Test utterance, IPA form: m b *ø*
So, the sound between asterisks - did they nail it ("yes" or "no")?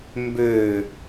yes